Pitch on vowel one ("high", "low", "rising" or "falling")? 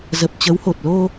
low